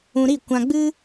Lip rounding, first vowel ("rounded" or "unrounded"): rounded